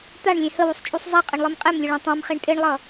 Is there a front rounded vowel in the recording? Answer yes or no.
no